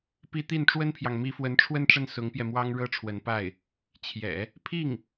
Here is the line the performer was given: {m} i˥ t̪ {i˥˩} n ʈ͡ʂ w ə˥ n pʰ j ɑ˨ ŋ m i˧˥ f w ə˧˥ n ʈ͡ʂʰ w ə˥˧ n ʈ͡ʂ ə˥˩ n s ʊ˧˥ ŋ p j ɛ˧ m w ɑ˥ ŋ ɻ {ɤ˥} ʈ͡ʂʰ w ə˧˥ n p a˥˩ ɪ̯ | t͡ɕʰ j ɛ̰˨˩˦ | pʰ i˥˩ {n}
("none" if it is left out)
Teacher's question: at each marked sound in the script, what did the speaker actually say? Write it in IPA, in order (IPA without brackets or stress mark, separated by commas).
p, i˥˩, ɤ˥, ŋ